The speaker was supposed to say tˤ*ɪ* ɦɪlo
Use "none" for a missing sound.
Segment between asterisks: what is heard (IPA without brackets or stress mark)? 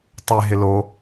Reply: ɪ